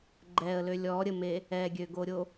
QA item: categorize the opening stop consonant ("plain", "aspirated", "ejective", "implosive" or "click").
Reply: click